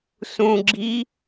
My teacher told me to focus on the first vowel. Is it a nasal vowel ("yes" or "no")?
yes